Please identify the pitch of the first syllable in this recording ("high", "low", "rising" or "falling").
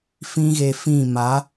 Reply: high